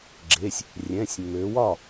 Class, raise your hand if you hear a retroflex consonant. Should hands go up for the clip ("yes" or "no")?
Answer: no